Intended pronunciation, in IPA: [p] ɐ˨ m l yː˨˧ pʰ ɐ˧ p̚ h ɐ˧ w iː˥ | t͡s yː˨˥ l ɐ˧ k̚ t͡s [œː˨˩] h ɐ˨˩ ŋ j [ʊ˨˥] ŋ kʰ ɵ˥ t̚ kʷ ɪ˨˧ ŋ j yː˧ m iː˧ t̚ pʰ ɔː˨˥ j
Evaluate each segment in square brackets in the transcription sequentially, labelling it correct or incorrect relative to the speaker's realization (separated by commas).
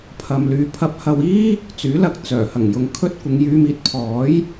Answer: incorrect, correct, incorrect